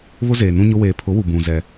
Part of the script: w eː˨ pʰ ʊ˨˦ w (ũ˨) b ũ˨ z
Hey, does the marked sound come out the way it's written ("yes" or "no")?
no